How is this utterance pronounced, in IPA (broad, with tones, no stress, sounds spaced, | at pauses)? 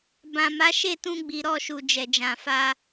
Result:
b ã˨ m a˨˦ ʃ e˦˨ t ũ˧ ɡ͡b i˨ ɾ ɔ˧ ʃ u˨ d͡ʒ ɛ˨ d͡ʒ ã˨ f a˧